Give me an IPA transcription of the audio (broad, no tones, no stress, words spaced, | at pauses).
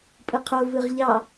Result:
pʼɯqʰo vɯʁʎɑ